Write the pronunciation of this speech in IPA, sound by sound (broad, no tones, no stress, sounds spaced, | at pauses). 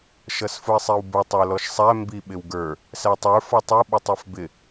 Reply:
ʃ ʌ s f ʊ ɪ̯ sˤ i w b ʊ tˤ ə˞ l ɔ ʃ sˤ æ m b i ɓ ɪ w ɡ ə˞ | s æ tˤ ə˞ f ɔ tˤ u ɓ ʊ tˤ ɛ f b ɪ